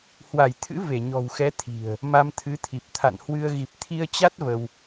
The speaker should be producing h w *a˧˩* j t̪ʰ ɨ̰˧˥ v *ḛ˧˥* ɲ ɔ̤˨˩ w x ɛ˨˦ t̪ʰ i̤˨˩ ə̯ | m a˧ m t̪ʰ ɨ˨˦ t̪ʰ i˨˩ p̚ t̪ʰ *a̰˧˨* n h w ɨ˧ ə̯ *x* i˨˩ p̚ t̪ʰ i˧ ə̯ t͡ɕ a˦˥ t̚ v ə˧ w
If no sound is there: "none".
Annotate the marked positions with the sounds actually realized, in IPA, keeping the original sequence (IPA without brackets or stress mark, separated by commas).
a˧˩, e˧˩, a̰˧˨, ɣ